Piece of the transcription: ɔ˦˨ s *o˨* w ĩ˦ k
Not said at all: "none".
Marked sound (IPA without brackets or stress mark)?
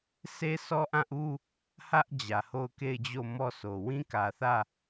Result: o˨